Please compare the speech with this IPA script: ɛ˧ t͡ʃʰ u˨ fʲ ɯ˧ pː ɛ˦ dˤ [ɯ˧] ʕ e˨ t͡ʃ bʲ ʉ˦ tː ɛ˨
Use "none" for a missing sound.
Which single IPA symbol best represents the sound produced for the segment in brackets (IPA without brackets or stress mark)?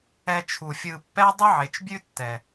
ɯ˦